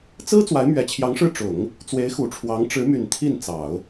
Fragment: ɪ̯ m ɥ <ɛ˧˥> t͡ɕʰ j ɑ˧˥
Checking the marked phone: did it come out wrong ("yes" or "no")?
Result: yes